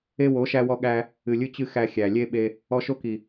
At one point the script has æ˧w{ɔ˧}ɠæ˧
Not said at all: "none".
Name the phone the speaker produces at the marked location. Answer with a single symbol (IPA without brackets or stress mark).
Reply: ɔ˧